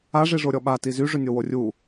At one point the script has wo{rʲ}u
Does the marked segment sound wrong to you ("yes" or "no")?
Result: no